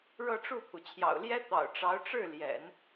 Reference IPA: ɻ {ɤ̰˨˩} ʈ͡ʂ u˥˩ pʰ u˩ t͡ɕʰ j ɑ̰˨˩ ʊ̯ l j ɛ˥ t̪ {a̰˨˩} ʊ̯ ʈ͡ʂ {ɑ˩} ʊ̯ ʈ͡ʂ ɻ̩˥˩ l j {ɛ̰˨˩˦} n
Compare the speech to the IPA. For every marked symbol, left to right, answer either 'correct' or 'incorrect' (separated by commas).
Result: incorrect, incorrect, incorrect, correct